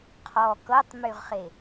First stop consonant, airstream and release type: aspirated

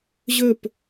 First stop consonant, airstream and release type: plain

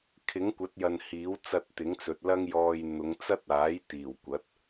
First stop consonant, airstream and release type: aspirated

